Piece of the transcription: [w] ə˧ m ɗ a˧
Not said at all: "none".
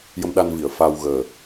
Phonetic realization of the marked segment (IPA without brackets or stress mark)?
j